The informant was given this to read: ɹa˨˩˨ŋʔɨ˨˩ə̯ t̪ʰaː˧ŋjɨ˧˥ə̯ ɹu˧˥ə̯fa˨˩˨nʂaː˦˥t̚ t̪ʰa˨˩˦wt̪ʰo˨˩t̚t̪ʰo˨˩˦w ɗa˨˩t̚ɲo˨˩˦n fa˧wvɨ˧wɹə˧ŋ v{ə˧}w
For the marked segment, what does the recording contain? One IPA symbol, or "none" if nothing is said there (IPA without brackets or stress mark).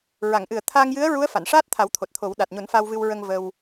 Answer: ə˧